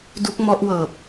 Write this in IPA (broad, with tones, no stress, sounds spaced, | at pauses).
d u˦˥ k̚ m ɔ˦˥ ʔ w ɤː˨˩ p̚